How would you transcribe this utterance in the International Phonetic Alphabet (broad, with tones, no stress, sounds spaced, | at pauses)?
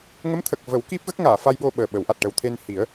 ŋ ə˧˥ m t̪ʰ ə˨˩ k̚ v ə˨˩˦ w k i˦˥ p̚ ɣ ə˦˥ k̚ ŋ aː˨˩˨ f a˧ j ɓ o˧ ɓ əː˨˩ ɓ ə˨˩˦ w ʔ a˨˩ t̚ ʈ ə˨˩ w t̪ʰ e˧ n h i˨˩˦ ə̯